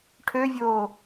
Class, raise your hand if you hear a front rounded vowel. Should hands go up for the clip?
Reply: yes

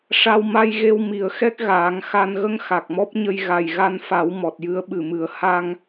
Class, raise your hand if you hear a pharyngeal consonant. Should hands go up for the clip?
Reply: no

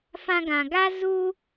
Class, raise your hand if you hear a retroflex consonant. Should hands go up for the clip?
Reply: no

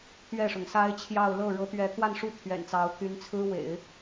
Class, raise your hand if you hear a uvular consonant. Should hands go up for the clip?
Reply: no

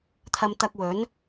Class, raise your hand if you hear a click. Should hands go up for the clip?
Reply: no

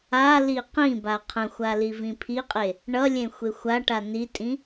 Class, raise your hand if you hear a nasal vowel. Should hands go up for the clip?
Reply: yes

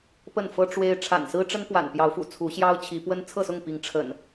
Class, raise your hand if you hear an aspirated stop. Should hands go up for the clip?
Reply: yes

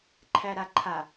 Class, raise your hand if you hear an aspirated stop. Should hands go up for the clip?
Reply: yes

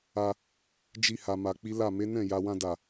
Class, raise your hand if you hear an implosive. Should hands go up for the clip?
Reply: no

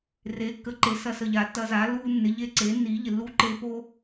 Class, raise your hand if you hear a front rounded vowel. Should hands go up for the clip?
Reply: no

